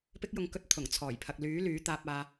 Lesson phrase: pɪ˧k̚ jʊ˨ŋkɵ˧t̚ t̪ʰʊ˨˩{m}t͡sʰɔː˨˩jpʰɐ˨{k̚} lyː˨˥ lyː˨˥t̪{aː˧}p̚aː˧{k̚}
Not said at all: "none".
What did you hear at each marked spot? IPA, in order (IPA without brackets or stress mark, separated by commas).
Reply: ŋ, k̚, aː˧, none